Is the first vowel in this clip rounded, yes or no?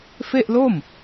no